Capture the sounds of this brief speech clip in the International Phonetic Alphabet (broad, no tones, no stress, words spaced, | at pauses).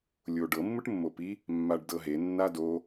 lʲoɖɤ mːɯʈmːopi | mːaɖdɤɦe nːado